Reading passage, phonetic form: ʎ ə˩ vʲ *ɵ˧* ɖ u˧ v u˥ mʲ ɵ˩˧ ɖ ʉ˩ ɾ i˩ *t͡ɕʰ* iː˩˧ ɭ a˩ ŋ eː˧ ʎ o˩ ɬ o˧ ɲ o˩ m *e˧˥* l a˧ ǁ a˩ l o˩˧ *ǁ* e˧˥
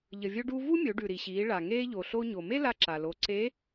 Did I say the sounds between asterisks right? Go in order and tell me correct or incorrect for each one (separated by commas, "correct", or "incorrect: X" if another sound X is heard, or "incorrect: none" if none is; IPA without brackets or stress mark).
correct, incorrect: ɕ, incorrect: e˥, incorrect: ǀ